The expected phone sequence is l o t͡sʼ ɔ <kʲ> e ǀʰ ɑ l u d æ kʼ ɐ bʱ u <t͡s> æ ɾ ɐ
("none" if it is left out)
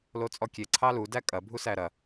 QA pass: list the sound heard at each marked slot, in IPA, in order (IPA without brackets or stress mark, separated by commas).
kʲ, s